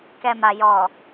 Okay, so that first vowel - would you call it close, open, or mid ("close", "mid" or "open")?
mid